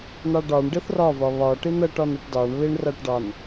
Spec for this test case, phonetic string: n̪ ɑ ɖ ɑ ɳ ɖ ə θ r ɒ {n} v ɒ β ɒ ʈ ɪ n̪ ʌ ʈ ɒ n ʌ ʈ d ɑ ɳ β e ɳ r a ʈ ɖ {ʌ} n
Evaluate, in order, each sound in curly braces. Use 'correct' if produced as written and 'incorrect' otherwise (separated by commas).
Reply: incorrect, incorrect